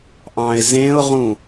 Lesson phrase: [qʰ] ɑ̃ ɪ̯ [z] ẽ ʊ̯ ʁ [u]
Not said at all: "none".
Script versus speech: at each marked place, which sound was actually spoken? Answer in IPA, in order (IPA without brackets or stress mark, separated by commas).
ʔ, z, ũ